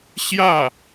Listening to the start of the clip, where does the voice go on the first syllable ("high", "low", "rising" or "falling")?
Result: falling